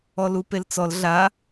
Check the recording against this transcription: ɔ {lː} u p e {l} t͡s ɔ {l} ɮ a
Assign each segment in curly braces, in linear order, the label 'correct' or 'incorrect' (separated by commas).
incorrect, correct, correct